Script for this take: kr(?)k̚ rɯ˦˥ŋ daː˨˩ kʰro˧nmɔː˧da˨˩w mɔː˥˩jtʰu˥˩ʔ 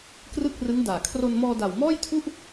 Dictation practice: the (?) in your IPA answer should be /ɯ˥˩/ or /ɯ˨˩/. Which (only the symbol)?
ɯ˥˩